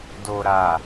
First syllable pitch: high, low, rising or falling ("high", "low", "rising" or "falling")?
low